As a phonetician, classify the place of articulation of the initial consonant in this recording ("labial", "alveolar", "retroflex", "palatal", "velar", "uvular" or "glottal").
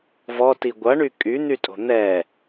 labial